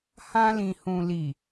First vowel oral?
no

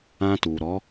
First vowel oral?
no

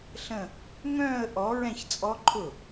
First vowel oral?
no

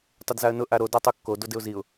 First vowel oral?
yes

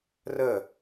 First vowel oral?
yes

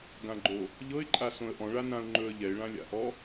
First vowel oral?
no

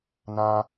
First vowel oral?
no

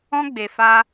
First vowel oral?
no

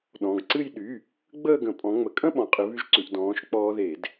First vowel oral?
no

